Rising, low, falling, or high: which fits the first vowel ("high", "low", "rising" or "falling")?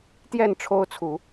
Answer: falling